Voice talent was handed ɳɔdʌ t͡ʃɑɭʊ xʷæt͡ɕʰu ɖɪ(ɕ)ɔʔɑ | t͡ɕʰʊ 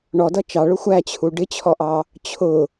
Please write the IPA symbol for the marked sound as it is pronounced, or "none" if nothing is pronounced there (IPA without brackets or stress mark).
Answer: t͡ɕʰ